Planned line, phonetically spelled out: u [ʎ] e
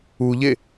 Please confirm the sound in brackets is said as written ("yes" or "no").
yes